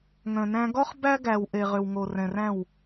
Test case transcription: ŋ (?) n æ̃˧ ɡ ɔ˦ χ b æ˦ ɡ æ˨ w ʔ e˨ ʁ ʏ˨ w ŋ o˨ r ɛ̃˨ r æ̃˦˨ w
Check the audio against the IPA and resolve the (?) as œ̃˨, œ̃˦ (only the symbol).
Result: œ̃˨